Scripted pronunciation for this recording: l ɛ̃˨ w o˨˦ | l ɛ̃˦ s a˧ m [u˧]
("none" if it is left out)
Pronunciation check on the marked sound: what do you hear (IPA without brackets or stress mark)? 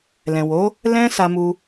u˧